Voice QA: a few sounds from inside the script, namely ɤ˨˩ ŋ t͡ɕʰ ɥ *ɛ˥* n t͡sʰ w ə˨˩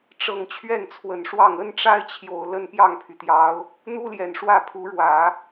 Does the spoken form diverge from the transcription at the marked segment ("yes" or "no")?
yes